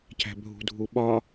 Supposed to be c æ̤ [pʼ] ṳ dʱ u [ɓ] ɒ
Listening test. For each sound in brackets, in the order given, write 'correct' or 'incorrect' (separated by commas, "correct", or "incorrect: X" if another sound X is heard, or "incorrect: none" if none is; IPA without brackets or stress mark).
incorrect: bʱ, correct